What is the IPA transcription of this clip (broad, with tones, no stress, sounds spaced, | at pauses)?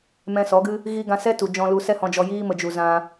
m ɛ̃˧ s ɔ˨˦ ɡ ɨ˦ | ɣ i˦ ɡ ã˧ s ɛ˦ t u˨ d͡ʒ ɔ̃˧ l u˧ s ɛ˦ h ɔ̃˧ d͡ʒ ɔ˧ j iː˦ m ə˧ d͡ʒ u˧ z ã˧